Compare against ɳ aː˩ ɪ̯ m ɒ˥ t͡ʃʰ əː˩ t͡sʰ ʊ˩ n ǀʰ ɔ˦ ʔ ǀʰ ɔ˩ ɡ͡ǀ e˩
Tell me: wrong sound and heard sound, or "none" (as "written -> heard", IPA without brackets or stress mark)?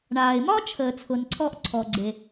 none